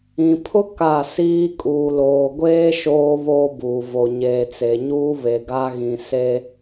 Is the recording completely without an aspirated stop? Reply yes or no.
no